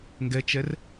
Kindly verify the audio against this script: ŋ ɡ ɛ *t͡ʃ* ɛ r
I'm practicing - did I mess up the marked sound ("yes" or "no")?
no